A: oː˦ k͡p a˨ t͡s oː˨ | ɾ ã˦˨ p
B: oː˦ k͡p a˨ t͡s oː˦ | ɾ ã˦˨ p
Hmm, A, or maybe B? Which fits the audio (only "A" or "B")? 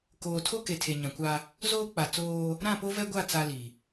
B